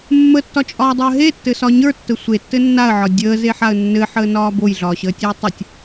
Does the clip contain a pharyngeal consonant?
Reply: yes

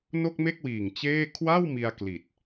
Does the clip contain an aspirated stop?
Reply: yes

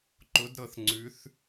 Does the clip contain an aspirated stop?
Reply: no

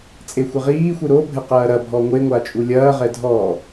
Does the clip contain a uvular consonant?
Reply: yes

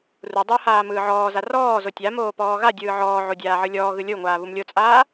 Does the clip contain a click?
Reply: no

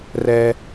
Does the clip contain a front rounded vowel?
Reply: no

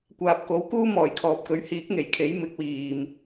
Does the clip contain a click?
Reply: no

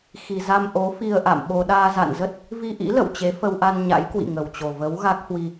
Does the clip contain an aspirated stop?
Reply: no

